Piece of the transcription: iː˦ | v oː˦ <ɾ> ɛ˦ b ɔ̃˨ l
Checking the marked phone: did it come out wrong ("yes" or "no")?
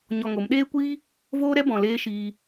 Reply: no